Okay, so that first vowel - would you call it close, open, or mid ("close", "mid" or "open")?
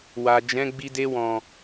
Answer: open